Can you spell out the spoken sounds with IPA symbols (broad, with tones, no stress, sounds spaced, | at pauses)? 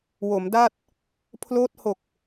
w o˩˦ m d a˥˩ t̚ | pʰ l oː˦˥ t̚ h o˨˩ k̚